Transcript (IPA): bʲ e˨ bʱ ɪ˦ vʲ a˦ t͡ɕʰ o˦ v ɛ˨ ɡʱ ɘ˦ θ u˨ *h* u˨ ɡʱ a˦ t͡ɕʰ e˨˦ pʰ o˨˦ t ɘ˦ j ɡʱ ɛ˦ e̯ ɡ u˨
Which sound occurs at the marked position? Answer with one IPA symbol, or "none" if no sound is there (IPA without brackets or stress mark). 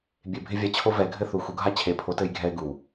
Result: x